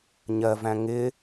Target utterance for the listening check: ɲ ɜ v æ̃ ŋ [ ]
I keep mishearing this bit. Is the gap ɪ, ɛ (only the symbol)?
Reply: ɪ